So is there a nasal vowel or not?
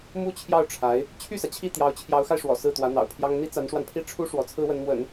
no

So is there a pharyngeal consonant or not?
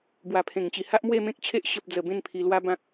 no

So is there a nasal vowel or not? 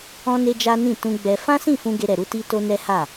yes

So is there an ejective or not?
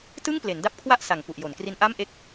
no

